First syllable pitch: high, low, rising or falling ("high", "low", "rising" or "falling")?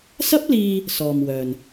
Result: high